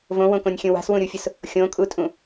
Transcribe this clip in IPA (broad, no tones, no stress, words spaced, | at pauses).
võwõkõnʲxʲũ wa̤swũɾʲufʲʊs | xʲõkʼutʼũ